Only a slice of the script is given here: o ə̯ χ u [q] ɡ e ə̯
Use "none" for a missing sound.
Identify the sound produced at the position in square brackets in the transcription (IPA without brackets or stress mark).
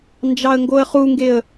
ŋ